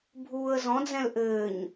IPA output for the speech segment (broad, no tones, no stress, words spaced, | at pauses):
bʱuːə̯zɔ̃d͡zɛ̃l ʔɘːɲ